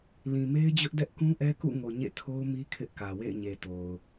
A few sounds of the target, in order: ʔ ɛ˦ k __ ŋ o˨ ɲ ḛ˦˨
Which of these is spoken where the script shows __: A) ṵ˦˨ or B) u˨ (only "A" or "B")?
A